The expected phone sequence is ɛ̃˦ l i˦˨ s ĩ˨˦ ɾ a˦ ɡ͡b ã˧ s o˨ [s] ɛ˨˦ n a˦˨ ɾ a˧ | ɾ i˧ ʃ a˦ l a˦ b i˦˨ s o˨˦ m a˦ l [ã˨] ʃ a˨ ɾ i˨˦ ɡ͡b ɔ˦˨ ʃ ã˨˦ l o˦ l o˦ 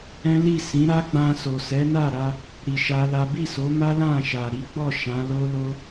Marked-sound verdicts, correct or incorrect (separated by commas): correct, incorrect